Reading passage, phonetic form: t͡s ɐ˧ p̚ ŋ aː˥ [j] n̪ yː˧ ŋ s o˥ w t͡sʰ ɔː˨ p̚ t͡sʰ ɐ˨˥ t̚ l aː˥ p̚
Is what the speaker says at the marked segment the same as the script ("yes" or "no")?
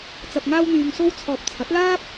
no